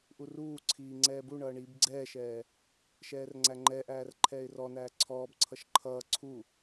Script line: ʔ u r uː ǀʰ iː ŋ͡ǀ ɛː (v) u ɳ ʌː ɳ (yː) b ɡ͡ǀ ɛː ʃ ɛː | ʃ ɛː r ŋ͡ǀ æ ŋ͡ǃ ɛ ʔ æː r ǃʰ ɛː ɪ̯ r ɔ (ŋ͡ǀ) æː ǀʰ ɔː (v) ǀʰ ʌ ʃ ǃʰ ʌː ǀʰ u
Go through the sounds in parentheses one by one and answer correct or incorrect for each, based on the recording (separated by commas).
incorrect, incorrect, incorrect, incorrect